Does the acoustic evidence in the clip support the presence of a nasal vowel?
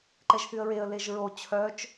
no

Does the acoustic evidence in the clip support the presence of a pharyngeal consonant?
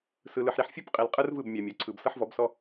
yes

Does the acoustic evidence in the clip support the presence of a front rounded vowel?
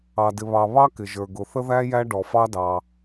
no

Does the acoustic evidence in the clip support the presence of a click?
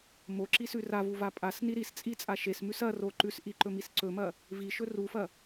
yes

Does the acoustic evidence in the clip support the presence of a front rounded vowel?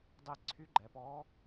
yes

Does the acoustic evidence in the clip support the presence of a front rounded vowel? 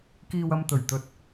no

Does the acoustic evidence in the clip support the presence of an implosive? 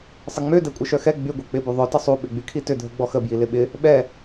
yes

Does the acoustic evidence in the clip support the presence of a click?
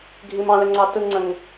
yes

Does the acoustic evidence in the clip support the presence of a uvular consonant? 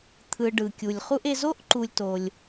yes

